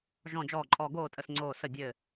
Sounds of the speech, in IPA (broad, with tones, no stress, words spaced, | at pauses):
ʒɔ̃˥˨d͡ʒɔː˥˨ǃʼɔ˥˨ ɡoː˥˨tʼə˧˩s ŋ͡ǀoː˧˩sə˧˩ dʲɘ˧˩